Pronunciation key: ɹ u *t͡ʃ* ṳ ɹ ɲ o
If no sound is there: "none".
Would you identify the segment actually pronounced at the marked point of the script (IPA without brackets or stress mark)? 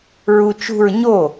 t͡ʃ